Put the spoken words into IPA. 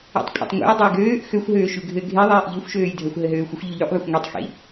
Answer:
ḛ tˤ kʷʼ ḛ tˤ ŋʷ ḛ j dˤ e j ɡ øː ʔ x ø xʷ ɦ øː ʃ ʉ ɡʱ ɘ ɡʱ e ðˤ eː ʔ ʎ ø xʷ ʃ øː j dʱ ɜ xʷ ɦ ɘ ɦ øː xʷ ə xʷ ʎ ʉ ʎ ʉ ʔ ðˤ ə xʷ ŋʷ e tˤ x ḭ

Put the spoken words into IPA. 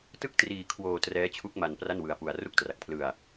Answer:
t ɯ˥˩ k̚ t r iː˧ kʰ w oː˧ t r ɛː˦˥ t͡ɕʰ u˦˥ k̚ m a˧ n p r a˥˩ n w ɯ˧ a̯ p u˧ a̯ r u˥˩ k̚ t r a˨˩ k̚ pʰ l ɯ˧ a̯

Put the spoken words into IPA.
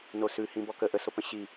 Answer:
n o s ʉ h ĩ b ɔ k ə ʔ ə s o p ə̃ ɕ i

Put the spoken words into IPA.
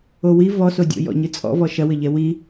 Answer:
o w i v ɔ s o dʲ o̰ j ɔ̰ ɲ ɨ t͡sʼ ɔ̰ v ɔ ʃ ɐ w ɘ ʎ ɛ w i

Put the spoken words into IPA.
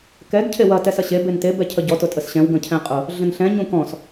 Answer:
k ɛ ɡ cʰ e w ɐ t ɛ s ɐ ɕ e b e n t e b ɛ cʰ ə ɟ ɔ t ʊ tʼ ə s ɕ ɛ̃ w ɡ ə̃ cʰ ɛ̃ qʼ ʊ | ɮ ə̃ n ɬ ɛ̃ ɲ ũ k ɔ̃ s

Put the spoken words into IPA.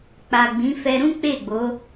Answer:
k͡p a˨ ɡ͡b ĩ˨˦ f ɛ˧ ɾ ũ˦ k͡p e˦˨ ɡ͡b o˨˦

